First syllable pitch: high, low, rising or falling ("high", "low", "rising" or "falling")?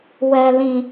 low